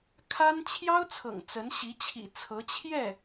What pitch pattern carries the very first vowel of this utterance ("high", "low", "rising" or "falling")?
high